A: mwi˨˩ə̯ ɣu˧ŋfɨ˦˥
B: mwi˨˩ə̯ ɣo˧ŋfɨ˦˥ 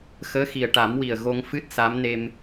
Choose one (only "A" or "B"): B